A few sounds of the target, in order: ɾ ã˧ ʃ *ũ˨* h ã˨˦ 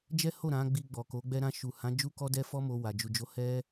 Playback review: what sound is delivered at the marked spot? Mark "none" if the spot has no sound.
u˨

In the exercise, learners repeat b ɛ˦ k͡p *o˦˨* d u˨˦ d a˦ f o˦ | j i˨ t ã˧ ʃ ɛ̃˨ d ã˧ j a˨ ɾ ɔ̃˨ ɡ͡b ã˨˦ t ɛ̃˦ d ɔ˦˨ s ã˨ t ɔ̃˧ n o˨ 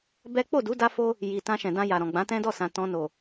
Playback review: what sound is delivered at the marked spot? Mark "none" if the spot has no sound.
o˦˨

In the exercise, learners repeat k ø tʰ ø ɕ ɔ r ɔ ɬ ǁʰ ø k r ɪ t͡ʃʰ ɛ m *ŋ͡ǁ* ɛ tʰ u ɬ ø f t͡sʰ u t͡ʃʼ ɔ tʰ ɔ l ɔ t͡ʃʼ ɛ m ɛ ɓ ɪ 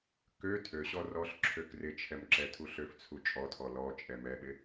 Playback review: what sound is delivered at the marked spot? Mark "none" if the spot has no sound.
ǁ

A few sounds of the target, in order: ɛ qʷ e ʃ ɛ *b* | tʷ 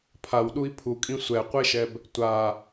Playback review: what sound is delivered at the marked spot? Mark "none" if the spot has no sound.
b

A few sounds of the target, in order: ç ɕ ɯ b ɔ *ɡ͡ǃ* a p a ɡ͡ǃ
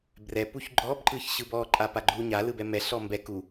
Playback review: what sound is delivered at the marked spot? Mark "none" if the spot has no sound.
ǃʼ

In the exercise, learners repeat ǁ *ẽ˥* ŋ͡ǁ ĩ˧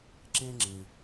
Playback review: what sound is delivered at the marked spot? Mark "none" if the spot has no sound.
ẽ˥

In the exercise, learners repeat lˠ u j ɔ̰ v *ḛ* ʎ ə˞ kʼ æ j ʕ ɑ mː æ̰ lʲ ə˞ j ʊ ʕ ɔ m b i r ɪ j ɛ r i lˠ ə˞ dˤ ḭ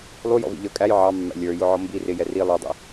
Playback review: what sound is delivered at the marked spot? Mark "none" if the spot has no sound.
ḭ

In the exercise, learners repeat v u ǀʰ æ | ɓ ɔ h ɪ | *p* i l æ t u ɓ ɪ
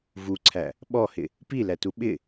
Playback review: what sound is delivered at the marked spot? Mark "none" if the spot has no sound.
p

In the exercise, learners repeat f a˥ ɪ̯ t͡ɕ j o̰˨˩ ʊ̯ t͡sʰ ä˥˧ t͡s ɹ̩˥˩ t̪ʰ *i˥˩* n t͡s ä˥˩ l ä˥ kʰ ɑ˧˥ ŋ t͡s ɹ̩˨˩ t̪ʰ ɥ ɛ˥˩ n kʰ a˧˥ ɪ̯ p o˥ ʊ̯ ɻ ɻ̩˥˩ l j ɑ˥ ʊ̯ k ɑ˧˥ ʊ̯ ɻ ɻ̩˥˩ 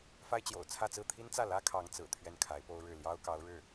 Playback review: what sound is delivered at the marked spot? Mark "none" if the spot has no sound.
i˥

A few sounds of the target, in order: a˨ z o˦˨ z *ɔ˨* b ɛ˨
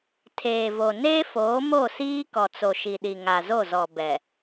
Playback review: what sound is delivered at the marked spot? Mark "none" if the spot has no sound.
ɔ˨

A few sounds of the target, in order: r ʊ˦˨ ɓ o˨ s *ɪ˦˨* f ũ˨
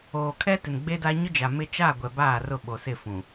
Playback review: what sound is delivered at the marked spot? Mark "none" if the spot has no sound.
ɪ˦˨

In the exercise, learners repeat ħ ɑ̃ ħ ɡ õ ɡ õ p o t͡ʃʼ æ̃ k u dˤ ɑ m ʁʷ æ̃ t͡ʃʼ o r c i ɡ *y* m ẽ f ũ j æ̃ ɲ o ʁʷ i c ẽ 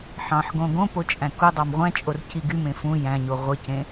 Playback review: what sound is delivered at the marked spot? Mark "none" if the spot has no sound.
y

